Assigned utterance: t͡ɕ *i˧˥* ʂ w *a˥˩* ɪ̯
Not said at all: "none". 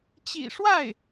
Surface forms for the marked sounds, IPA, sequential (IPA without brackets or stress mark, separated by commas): ḭ˨˩, a˥˩